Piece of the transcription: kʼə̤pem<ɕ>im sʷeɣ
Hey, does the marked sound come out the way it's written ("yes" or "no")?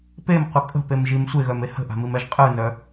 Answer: no